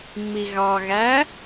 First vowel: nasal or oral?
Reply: oral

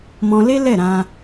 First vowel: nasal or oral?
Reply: nasal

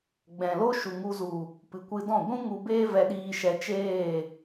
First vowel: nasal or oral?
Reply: nasal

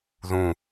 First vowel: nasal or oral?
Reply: nasal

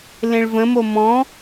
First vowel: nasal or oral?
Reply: nasal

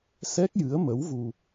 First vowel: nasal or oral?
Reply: oral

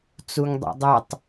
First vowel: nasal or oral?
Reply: oral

